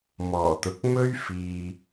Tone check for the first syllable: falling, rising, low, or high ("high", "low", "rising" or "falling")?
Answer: low